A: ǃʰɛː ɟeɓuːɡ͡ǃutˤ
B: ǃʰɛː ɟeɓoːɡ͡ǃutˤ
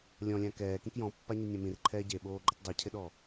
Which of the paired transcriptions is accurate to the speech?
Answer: B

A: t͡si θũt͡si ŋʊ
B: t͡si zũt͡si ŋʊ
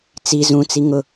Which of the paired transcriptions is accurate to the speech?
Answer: B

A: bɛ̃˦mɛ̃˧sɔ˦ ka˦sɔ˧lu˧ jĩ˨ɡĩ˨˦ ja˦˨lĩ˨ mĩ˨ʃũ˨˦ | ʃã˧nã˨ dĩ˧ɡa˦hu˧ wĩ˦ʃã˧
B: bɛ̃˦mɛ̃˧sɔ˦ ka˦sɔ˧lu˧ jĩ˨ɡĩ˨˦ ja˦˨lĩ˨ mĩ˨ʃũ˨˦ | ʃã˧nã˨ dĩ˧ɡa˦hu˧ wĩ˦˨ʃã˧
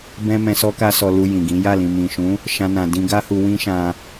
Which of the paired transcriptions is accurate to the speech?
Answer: A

